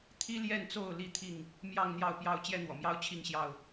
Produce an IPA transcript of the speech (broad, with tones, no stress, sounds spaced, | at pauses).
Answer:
t̪ʰ i˦ l j ɛ˥˨ n t͡s o˥˨ ʊ̯ l i˥˨ t̪ʰ i˥˨ ŋ | m j ɑ˥˨ ŋ n̪ j ɑ˥˨ ʊ̯ p j ɑ˦ ʊ̯ t͡ɕ j ɛ˦ n̪ w ɔ̰˨˩ m j ɑ˦ ʊ̯ t͡ɕʰ i˥˨ ŋ ɕ j ɑ˥˨ ʊ̯